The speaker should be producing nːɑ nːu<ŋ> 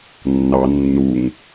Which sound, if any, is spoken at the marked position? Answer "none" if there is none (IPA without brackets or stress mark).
ŋ